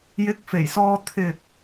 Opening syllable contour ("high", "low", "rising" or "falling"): rising